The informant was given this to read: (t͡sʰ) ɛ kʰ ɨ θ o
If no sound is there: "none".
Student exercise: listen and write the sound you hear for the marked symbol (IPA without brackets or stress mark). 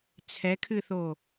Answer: t͡sʰ